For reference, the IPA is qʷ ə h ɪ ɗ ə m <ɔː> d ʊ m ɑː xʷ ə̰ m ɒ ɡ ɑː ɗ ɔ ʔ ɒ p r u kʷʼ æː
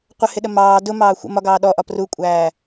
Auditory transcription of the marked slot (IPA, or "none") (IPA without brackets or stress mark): ɑː